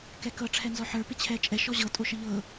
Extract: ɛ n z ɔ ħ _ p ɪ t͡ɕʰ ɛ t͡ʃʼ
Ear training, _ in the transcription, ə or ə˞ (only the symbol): ə˞